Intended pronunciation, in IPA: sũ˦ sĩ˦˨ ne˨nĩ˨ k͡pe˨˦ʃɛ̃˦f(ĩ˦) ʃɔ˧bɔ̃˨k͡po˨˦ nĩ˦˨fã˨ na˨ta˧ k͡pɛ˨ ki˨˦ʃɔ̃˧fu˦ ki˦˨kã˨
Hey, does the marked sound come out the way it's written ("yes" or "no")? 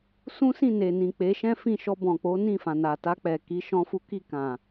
no